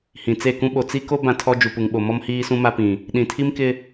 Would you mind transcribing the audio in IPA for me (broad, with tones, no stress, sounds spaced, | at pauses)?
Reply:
h ĩ˨ t͡s e˦˨ k ũ˦ ɓ o˨ t͡s i˦ k o˦ b ã˦ tʰ ɔ˦ d͡ʒ u˨ p u˨ ŋ ɓ o˨ m ɔ˦ m h iː˦ s ũ˦ m a˦ p ĩ˨ | ɗ ĩ˨ tʰ i˦ m k ɪ˦